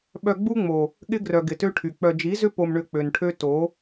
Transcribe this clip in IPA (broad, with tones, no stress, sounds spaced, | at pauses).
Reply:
ɓ œ˧ ɡ͡b u˦ ŋ͡m o˨ | ɠ ɪ˦ ɡ r œ˨ ɡ ɪ˨ t ø˦ ʈʰ y˨ k͡p œ˧ d͡ʒ i˨˦ z ʏ˦ p o˧ m ɳ ʏ˧ k͡p ø˨ n ʈʰ ø˦ t o˨˦